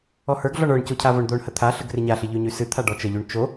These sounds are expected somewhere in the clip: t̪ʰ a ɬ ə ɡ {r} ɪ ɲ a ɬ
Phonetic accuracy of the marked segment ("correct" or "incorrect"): correct